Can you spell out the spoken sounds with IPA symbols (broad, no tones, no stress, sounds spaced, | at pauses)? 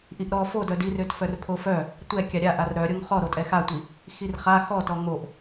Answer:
ʔ i ʔ ɾ ɔ f o d œ d i r ø t f œ r pʰ o f œ | tʷ ɛ kʲ a ɾʲ a ʔ a r ɾ œ ɾʲ o ŋ χ ɔ ɾ o tʼ ɛ x a tʷ i | x i r χ a x ɔ t ɔ ŋ o ʔ